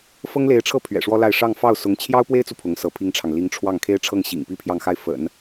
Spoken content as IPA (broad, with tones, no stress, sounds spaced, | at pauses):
f ɤ˥ ŋ l e˧˥ ɪ̯ ʈ͡ʂʰ ɤ˥˩ pʰ ɥ ɛ̰˨˩ ʂ w ɔ˥ l a˥˧ ɪ̯ ʂ ɑ˥˧ ŋ f ɑ˥˩ ʊ̯ s ʊ˧˥ ŋ t͡ɕʰ j ɑ˥ ʊ̯ p w e˥ ɪ̯ t͡s u˨ pʰ ʊ˧˥ ŋ s ɤ˧˥ pʰ i˥ ŋ ʈ͡ʂʰ ɑ˨ ŋ l i˧˥ ŋ ʈ͡ʂʰ w ɑ˥˩ ŋ kʰ e˥ ɪ̯ ʈ͡ʂʰ ɤ˥˩ ŋ ɕ ḭ˨˩ ŋ p i˥ pʰ j ɑ˥˧ ŋ x a˥˩ ɪ̯ f ə̰˨˩˦ n